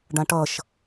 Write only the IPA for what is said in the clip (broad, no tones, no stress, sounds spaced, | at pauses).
ɖ ã ʈ ʌ ʃ